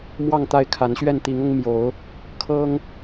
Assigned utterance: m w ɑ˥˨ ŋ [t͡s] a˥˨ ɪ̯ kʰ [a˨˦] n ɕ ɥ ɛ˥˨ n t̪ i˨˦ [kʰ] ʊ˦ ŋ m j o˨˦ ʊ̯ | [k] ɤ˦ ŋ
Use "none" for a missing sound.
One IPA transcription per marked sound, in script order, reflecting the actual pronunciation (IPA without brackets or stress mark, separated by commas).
t̪, a˨˦, ŋ, kʰ